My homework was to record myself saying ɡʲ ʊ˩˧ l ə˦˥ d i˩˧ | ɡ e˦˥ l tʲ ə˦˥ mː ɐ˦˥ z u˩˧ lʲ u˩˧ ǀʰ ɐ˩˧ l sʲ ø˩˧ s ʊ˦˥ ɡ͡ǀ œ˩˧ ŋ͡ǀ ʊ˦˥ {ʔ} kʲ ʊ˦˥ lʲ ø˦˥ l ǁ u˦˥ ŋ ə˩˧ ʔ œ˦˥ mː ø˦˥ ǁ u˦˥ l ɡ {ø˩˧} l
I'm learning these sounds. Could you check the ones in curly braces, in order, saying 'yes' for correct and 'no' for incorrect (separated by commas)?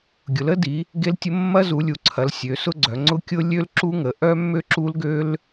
no, no